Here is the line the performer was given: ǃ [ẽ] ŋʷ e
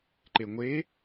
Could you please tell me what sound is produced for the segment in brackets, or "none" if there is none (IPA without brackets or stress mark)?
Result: e